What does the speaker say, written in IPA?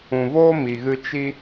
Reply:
ũ˨ v oː˦ m i˨ ɣ ɨ˧ t͡ʃ i˦

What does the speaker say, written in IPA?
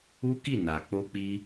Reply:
u˦ k i˦˨ n a˨ k͡p o˧ k͡p i˧

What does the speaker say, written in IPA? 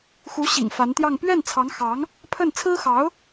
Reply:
x u˧˥ ɕ ḭ˨˩ ŋ f a˧˥ n t̪ j ɑ˥˧ ŋ p ɥ ɛ˥˩ n t͡sʰ ɑ˧˥ ŋ x ɑ˧˥ ŋ | pʰ ə˥˩ n t͡sʰ ɹ̩˥ x ɑ˧˥ ʊ̯

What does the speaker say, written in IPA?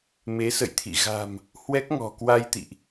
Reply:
m e˨˦ s ə̰˧˨ j t̪ʰ ḭ˧˨ ɣ a̤˨˩ m | h w ɛ˦˥ k̚ ŋ ɔ̤˨˩ k w a˧ j t̪ ḭ˧˨ ʔ

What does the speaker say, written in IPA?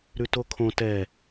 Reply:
ɾ ʉ t o kʰ õ t ɛ

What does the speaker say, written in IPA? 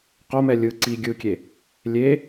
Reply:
q o m ɛ lʲ ɯ ǀ i ɡʲ ɯ kʲ e | lʲ e

